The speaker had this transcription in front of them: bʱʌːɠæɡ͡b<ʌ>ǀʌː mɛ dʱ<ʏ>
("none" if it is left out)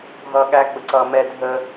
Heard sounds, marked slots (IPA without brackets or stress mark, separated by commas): ə, ə